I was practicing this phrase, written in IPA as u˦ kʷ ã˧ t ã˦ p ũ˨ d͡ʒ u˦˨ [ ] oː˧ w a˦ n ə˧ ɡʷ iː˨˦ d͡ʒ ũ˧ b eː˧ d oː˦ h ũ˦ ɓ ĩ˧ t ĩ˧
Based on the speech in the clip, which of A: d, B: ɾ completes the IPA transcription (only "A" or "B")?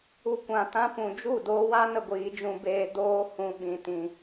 A